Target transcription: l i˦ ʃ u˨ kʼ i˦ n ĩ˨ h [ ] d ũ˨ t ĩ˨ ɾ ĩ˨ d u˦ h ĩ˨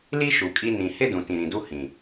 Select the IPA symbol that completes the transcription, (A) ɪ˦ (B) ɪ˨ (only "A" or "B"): A